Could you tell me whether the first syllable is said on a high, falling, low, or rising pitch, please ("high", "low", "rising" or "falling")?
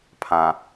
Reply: low